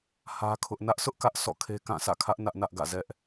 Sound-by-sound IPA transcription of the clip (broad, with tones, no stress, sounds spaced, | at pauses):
h ä˦ kʰ ʊ˦ ʔ n ä˦ ʔ s ʊ˦ ʔ k ä˦ ʔ s ɔ̰˦˨ kʰ e˦ k ã˦˨ s ä̰˦˨ kʰ ä˦ ʔ n ä˦ ʔ n ä˦ ʔ ɡ ä̰˦˨ z ɛ˦ ʔ